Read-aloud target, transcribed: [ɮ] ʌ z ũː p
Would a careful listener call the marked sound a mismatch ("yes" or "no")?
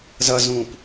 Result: yes